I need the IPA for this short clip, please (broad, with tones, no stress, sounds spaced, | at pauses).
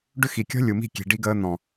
ɖ ʏ˦ x i˨ kʲ ɔ̤˦ lʲ u˨ m i̤˦˨ kʲ e̤˨ ɖ i˧ ɡ əː˧ n̪ ɔ̃˨